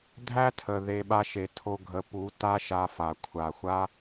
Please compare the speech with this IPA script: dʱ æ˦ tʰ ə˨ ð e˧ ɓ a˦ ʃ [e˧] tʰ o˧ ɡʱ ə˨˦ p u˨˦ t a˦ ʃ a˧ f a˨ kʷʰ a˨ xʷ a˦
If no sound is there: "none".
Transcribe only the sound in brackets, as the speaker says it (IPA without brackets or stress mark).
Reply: e˧